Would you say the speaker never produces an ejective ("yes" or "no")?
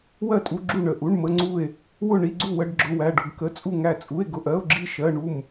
no